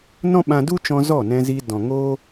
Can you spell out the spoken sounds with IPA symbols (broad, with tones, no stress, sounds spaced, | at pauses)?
n ɔ̃˦ ɓ ã˧ d u˦ t͡ʃ ɔ̃˧ z ɔ˦˨ n ɛ̃˧ z i˧ d ɔ̃˨ ŋ oː˦